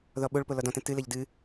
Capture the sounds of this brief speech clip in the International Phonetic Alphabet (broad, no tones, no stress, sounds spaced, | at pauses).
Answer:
ð ɔ ɓ o ɭ p o l ɔ d ɔ̃ t ɛ̃ t ɨ l ɘ ʎ d ɨ